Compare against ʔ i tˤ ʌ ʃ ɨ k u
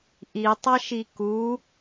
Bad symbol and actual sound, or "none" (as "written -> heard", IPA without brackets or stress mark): ɨ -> i